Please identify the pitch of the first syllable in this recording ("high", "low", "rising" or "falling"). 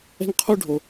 high